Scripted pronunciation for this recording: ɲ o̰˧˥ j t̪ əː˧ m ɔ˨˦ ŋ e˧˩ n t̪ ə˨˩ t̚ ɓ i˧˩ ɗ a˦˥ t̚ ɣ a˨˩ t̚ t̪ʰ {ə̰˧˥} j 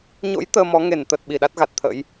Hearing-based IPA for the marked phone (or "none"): ə̰˧˥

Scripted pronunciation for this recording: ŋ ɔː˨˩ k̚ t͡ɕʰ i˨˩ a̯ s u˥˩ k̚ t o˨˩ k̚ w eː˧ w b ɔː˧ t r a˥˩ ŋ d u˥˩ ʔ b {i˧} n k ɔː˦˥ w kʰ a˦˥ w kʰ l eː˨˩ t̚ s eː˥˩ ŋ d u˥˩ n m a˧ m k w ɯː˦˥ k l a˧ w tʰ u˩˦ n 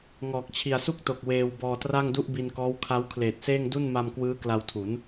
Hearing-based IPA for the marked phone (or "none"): i˧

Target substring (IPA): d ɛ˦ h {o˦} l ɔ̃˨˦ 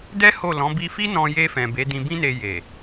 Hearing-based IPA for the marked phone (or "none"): o˦˨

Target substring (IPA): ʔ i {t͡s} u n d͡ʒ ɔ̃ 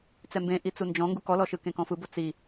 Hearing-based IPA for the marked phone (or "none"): t͡s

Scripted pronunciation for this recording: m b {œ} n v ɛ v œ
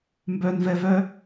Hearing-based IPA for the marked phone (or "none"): œ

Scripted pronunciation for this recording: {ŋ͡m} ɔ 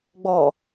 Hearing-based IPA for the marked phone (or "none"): ɡ͡b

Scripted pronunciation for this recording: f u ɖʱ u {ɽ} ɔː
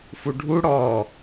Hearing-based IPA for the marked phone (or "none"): ɽ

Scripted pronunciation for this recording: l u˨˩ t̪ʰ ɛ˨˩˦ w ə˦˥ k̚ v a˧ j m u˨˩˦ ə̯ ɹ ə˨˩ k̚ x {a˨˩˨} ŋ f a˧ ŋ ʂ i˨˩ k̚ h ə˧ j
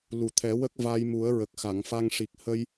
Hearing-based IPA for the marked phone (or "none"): a˨˩˨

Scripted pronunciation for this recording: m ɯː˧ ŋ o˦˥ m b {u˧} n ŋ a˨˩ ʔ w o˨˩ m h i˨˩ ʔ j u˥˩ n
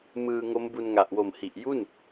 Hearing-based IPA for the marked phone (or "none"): u˧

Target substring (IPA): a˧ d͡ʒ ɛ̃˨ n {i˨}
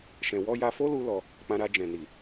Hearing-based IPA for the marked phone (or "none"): i˨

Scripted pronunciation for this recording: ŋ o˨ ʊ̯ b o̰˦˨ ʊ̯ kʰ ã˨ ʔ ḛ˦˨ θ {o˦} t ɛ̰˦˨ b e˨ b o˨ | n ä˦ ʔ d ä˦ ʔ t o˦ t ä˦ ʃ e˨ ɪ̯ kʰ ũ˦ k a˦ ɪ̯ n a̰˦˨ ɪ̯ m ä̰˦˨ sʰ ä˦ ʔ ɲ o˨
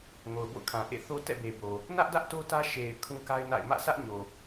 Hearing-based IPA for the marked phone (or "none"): o˦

